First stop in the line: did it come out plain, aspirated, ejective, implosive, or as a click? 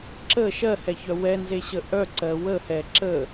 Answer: click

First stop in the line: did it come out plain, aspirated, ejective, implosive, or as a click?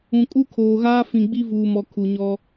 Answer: ejective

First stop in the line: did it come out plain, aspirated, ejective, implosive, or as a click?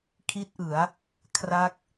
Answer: aspirated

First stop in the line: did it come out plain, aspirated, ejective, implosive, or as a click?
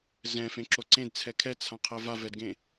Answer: click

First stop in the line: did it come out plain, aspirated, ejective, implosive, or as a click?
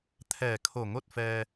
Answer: aspirated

